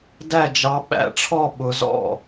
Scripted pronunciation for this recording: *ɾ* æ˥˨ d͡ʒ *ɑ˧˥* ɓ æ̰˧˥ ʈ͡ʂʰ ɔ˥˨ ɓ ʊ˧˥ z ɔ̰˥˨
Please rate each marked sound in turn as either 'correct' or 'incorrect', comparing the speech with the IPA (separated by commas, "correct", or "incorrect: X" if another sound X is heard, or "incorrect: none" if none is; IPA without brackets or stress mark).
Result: incorrect: d, correct